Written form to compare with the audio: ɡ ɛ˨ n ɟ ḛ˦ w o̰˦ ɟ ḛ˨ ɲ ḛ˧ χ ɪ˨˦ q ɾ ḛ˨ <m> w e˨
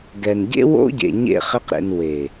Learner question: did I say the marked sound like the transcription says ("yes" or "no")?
no